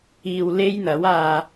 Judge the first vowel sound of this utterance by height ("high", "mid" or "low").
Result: high